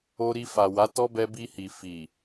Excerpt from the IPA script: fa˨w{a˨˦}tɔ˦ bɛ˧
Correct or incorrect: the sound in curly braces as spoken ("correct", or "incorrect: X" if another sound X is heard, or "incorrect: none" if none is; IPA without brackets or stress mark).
correct